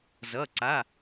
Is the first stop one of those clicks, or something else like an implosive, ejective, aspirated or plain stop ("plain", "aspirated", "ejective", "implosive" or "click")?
click